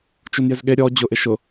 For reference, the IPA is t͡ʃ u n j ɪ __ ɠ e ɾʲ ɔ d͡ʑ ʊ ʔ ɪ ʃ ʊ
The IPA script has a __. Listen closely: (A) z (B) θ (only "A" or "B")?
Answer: A